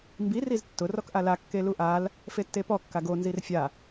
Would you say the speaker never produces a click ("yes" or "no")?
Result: yes